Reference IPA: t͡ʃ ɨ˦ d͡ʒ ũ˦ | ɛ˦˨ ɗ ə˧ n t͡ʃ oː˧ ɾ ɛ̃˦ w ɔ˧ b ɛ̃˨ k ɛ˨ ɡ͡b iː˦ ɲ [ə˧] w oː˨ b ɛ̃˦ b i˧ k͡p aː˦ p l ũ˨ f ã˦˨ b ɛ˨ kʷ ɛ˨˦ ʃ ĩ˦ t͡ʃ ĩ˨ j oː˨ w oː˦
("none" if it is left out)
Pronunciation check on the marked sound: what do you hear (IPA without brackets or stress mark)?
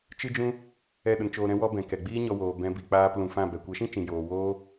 ɔ˧